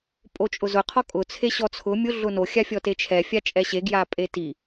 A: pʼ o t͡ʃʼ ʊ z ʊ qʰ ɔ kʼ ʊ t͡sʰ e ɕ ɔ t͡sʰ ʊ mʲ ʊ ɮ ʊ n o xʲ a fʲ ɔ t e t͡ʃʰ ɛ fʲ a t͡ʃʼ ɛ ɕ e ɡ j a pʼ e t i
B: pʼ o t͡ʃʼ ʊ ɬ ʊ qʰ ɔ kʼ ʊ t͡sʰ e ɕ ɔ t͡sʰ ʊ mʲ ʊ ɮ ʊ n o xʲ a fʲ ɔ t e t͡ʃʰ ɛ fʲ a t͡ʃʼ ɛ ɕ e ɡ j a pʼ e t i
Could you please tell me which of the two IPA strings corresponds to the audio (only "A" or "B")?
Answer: A